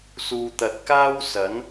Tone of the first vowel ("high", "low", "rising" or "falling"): low